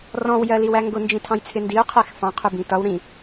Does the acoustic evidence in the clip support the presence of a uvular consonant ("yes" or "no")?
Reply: yes